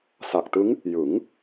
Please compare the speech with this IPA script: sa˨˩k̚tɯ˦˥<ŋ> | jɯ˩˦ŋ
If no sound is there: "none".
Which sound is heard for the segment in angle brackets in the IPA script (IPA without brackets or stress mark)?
ŋ